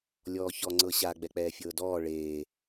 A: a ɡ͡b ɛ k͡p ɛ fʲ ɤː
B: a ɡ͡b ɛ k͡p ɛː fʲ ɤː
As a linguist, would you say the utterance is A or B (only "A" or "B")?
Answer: B